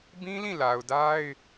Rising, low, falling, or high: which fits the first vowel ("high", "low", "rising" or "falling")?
high